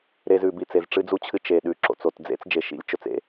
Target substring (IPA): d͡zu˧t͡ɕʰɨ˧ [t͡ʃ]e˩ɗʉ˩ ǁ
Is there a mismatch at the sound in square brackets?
no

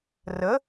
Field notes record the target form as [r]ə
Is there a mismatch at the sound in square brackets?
no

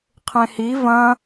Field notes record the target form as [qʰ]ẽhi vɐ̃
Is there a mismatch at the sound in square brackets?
no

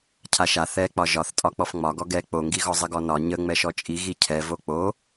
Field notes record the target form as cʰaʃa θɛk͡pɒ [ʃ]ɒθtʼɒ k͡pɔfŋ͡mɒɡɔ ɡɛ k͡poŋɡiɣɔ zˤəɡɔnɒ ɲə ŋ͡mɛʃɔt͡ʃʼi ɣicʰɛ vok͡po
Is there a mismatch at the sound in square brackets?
yes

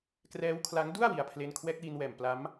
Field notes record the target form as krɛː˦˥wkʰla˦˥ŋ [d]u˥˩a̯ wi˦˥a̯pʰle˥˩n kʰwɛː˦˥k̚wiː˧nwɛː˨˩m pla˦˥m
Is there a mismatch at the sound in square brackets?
no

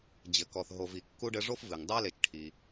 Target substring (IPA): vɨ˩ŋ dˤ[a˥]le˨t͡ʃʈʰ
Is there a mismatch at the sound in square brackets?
no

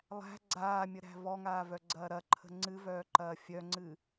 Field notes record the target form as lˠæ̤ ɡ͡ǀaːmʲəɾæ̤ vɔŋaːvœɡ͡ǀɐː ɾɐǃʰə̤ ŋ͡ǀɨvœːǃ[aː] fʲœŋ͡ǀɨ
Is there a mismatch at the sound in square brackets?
yes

